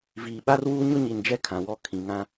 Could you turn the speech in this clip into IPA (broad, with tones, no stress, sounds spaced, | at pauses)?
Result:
v iː˨ ɓ a˦ r w uː˦ ɲ ʊ˦ ɲ i˨ n d͡ʒ ɛ˦ kʰ ã˨ w ɔ˦ kʰ ĩ˨ ŋ ã˦